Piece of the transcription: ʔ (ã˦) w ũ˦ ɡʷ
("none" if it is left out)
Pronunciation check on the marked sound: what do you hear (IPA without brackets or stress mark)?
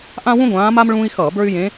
ã˦